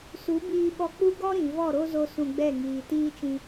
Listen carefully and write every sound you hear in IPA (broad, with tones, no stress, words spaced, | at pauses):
su˨˦ biː˧ɓɔ˧k͡pu˦ ɡɔ˦ ɾĩ˨ vɔ˦˨ɾo˦zo˧ sũ˧ɡ͡bɛ˦˨ ŋiː˨tiː˦t͡ʃĩ˧